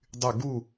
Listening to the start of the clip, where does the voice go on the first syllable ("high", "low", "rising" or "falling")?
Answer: falling